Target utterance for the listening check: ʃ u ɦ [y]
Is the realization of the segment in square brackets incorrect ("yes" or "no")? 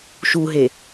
yes